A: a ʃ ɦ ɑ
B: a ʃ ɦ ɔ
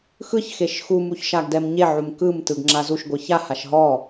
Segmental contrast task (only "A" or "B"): B